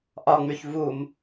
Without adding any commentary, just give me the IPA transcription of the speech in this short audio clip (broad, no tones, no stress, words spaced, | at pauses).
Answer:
ʔɒŋ͡myç vum